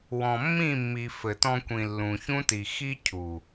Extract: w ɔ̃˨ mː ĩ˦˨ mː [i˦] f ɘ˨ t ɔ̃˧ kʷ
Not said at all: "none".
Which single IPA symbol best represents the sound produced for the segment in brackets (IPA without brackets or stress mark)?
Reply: i˨